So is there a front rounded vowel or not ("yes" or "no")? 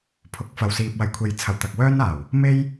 yes